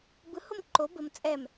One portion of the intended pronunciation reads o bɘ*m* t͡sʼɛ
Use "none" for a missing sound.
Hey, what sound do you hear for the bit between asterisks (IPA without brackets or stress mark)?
m